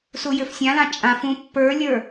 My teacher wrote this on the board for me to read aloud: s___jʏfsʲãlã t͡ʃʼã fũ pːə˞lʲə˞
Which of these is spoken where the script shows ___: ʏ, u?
u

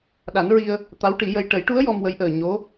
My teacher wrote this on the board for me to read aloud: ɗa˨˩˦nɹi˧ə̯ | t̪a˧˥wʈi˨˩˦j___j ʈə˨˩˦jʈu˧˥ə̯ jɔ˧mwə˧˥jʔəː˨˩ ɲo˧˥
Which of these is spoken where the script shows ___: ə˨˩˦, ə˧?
ə˧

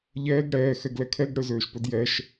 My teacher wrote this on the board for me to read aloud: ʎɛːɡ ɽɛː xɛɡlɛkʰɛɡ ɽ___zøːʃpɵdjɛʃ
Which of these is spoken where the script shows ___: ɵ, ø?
ø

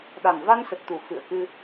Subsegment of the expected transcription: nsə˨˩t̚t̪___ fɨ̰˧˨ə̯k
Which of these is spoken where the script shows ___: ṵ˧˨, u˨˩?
u˨˩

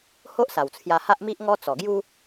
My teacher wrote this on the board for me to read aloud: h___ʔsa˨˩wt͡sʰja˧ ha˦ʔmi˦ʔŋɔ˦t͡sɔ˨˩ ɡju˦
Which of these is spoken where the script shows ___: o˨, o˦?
o˦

